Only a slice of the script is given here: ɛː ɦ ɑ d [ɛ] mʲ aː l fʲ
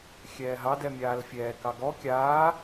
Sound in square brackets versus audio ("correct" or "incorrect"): correct